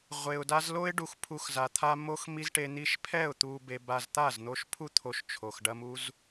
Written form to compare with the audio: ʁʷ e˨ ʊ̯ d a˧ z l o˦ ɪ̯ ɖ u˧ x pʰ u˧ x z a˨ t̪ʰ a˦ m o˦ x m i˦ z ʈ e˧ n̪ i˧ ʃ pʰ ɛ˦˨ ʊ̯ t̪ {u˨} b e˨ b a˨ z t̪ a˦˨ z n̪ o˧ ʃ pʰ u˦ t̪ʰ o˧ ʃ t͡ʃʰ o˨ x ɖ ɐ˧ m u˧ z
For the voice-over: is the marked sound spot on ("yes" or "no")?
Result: yes